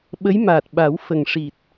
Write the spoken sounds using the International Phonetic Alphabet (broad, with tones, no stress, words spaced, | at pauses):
ɓə˧˥jmaː˨˩t̚ɓa˨˩˦w fə˨˩ŋʂi˨˩t̚